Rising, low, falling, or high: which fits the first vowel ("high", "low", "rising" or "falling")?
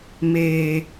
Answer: low